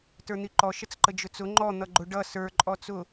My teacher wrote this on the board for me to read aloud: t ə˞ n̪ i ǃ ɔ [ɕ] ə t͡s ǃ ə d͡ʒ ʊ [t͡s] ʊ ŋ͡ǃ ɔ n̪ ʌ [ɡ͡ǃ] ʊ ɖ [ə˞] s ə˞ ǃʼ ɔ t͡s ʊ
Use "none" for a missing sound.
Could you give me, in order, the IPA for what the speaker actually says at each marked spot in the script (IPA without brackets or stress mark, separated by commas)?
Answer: ʃ, t͡s, ɡ͡ǃ, ʌ